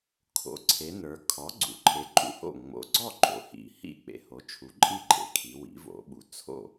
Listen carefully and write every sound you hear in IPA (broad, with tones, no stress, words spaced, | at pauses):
kʰo̰˩˥ǀʰe˩˧ nə˞˩˧ kʰɔ˩˥ɡ͡ǀṵ˩˧ ǃʰe˩˥ǃʼṵ˩˥ho̰˥˩ ŋ͡mo̰˩˥ɡ͡ǀɔ˥˩ ɡ͡ǃo̰˩˧hḭ˩˧ hḭ˥˩ k͡pḛ˩˧ho˩˥t͡ʃʰu˩˥ǃʼi˥˩ ɡ͡ǃḛ˩˧kʰi˩˧ wḭ˩˥vo̰˩˥ɓu˩˧ t͡sʰo̰˥˩